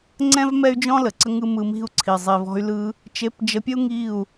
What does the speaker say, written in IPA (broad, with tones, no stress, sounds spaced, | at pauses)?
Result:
ŋ͡ǀ ɛ̃˦ v m ɛ˦ y̯ d͡ʒ ɔ̃˦ l ə˨ ǀ ə˦ ŋ ɯ˦ m ɯ˧ m i̤˦˨ u̯ ǀʰ i˨ zˤ i˨ v ɔ̤˧ y̯ l ɯ˧ | t͡ʃ e˧ p d͡ʒ ə˧ pʲ ə˦ u̯ ŋ i˦˨ u̯